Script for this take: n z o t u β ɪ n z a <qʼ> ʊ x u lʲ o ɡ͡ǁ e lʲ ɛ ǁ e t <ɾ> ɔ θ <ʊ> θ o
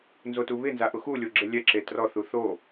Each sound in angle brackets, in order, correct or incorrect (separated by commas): incorrect, incorrect, incorrect